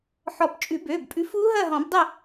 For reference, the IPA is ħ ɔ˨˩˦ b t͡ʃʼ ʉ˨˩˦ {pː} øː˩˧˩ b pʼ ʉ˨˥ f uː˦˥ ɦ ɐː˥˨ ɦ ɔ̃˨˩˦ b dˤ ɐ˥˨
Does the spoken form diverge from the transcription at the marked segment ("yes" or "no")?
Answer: yes